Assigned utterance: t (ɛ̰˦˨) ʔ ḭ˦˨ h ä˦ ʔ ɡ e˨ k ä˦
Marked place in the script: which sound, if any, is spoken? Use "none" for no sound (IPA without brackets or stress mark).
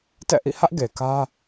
ɛ̰˦˨